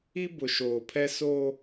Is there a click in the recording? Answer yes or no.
no